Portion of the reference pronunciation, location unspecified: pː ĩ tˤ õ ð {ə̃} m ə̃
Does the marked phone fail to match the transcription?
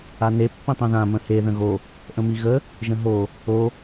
yes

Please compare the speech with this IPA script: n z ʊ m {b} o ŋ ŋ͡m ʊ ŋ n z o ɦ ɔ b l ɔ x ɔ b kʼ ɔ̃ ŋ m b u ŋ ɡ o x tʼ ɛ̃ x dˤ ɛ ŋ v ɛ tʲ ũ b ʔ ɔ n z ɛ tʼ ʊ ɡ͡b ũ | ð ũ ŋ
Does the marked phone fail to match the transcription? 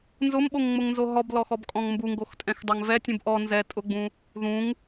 yes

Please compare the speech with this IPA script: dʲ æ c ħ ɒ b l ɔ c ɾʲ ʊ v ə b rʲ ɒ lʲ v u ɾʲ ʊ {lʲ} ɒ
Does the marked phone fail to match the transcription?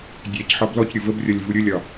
no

